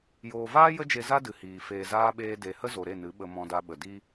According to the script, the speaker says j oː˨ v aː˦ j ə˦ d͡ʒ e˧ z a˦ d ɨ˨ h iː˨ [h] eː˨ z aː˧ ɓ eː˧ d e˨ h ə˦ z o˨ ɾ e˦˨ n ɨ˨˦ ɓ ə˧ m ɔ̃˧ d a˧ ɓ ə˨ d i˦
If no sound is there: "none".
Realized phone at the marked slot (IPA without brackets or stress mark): f